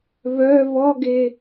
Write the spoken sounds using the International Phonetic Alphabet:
β œ β ɔ ɡ e

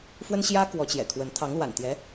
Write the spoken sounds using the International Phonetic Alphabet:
f w ə˥ n ɕ j ä˥ k w ɔ˧˥ t͡ɕ j ɛ̰˨˩ kʰ w ə˧˥ n t̪ʰ ɑ˧˥ ŋ l w a̰˨˩ n t̪ j ɛ˧˥

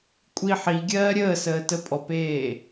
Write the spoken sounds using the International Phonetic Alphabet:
kʷʼ i ħ i ɡʲ ɜː ɾʲ əː s əː t ə pʼ ɔ p eː

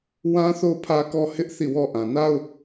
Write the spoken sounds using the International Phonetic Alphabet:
w ã˦ θ o˦˨ ʊ̯ pʰ ä˦ k ɔ˦ h ɪ˦ ʔ θ i˦˨ w ɔ˦ ʔ ã˨ n a˦ ʊ̯

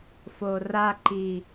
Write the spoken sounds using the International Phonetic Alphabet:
f o r a ǃ i

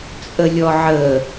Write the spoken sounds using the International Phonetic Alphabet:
t͡sʼ ə lʲ ɔ ʕ ə

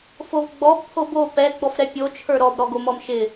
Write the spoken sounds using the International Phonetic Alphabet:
f o v ɡ͡b ɔ b pʰ o b o p ɛ ɡ͡b ɔ f ɾ ɛ pʲ o t͡ʃʰ ə˞ ɾ ɔ b ɾ ɔ ɡ o m ɔ m ʃ ɪ

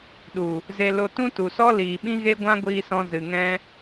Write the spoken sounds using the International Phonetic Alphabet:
ɗ u˨ | z e˧ l o˧ t ũ˦ t u˨ s ɔ˦ l iː˨ ɓ ĩ˦ ɣ e˦ ɡʷ ã˦ ɡʷ iː˧ s ɔ̃˧ z ɨ˨ ŋ ɛ̃˦

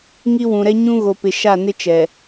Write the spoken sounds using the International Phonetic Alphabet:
ŋ i˦ w ũ˨ ɾ ɛ˦ ɲ ũ˦ ɣ o˨ p ɪ˨ ʃ a˦˨ n ɪ˦ t͡ʃ ɛ˨

